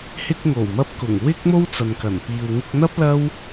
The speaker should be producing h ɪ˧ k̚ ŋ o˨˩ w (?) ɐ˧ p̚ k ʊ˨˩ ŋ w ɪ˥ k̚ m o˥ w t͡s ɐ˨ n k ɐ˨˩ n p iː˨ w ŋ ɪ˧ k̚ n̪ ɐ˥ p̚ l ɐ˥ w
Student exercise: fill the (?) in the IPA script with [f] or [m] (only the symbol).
m